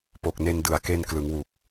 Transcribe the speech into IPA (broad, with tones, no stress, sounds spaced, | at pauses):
p o˨˩ k̚ n e˧ n d ɯ˨˩ a̯ k e˧ n k l ɯ˩˦ ŋ w u˨˩ k̚